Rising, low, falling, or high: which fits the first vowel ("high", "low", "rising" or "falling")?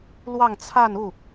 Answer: falling